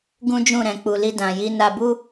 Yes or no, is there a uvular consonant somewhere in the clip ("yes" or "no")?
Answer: no